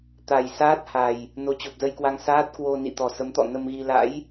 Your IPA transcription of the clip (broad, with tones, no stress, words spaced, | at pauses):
t̪a˨˩jsaː˦˥t̚ha˨˩j | no˨˦t͡ɕo˨˩p̚zə˧jkwa˧ŋ saː˦˥t̚kwo˧ nḭ˧˨t̪ɔ˨˩ sə˨˦mt̪ɔ̰˧˨ nə˧mɣi˧ la̰˧˥j